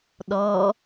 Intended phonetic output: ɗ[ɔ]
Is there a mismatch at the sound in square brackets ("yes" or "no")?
no